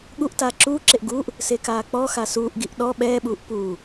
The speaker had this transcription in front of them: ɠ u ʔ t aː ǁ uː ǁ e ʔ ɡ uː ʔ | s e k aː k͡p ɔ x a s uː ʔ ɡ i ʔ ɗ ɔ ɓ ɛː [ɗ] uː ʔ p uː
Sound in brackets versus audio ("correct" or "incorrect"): incorrect